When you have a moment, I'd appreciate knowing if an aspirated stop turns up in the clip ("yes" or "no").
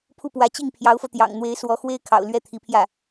yes